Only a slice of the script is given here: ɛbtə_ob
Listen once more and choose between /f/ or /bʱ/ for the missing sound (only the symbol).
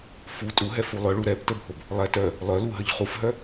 bʱ